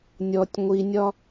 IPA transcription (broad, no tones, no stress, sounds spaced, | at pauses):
nʲ ɔ tʲ ŋʷ i nʲ ɒ